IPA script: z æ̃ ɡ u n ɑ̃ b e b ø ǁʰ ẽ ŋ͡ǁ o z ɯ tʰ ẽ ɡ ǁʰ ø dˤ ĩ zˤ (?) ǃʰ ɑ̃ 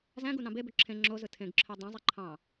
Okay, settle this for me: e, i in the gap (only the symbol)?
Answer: i